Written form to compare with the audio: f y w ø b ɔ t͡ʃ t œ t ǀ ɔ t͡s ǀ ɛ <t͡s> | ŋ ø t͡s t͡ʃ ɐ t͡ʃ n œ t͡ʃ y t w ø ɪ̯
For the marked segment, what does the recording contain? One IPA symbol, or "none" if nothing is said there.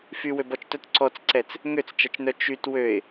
t͡s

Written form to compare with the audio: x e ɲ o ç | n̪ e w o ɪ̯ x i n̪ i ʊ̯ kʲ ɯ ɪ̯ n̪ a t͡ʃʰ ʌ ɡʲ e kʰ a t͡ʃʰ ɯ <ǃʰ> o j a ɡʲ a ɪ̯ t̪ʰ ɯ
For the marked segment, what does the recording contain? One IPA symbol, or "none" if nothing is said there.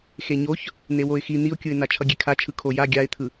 kʰ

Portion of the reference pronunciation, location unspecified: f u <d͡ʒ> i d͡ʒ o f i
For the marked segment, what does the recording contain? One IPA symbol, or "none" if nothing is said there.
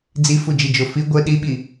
d͡ʒ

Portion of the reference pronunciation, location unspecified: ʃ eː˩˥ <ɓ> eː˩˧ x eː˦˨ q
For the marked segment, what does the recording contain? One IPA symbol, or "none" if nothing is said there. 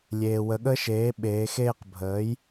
ɓ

